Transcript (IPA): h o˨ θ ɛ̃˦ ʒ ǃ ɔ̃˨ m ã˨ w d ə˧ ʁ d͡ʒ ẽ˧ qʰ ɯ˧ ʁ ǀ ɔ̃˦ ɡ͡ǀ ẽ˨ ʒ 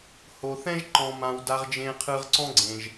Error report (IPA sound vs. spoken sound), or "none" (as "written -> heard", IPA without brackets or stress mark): ə˧ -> a˧